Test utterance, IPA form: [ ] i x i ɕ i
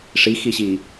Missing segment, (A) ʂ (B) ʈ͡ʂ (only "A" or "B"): A